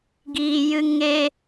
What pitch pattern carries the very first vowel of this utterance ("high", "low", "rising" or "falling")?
low